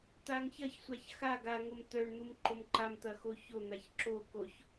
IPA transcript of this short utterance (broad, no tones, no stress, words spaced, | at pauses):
t̪aŋçɐçsʷaç xa ɡaŋom t̪œɳ n̪umǃomǃamt̪ɐ xoçon̪aç ǁo koç